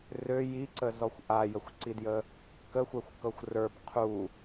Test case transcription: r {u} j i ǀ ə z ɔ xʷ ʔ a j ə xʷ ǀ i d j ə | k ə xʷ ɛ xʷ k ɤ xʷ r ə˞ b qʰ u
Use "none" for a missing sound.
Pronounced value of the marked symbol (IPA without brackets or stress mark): ø